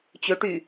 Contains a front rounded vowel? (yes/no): yes